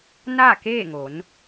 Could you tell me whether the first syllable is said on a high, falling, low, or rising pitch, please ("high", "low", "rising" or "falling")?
falling